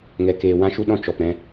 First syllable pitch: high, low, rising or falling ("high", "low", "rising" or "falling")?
low